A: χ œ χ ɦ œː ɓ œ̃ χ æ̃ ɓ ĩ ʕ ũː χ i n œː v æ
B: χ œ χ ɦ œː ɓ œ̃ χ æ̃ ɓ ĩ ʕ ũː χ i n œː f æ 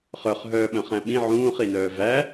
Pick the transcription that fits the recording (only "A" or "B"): A